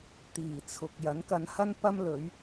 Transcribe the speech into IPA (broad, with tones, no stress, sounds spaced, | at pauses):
t̪ iː˨˩ t͡sʰ ʊ˨ k̚ j ɐ˨˥ n k ɐ˧ n h ɐ˥ n p ɐ˥ m l ɵ˨˥ ɥ